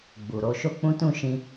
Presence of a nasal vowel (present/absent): present